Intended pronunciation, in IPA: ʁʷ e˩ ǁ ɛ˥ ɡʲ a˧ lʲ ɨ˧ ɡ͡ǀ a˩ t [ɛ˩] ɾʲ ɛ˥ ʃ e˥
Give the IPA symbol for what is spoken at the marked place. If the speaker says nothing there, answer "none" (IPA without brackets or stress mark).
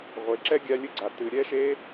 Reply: ɨ˩